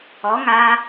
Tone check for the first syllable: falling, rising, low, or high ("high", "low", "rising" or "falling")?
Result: rising